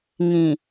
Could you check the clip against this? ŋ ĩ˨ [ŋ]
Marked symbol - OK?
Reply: no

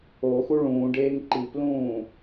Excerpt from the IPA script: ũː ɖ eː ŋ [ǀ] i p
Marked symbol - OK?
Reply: no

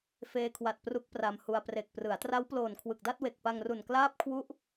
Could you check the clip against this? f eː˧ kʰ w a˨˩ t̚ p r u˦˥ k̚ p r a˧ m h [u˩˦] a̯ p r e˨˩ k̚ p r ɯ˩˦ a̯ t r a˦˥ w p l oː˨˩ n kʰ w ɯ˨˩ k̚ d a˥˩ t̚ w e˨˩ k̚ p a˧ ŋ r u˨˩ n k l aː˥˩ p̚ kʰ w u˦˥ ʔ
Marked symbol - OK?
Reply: no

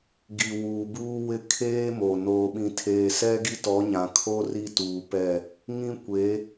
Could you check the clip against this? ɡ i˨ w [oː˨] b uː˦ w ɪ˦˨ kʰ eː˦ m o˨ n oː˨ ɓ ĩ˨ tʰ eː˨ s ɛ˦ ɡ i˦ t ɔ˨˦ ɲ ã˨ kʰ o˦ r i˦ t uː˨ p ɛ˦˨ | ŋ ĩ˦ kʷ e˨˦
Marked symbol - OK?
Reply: no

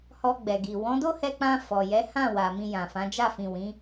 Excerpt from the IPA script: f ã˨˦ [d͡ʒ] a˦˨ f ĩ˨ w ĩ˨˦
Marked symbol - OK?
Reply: yes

